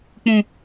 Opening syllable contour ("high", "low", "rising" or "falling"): low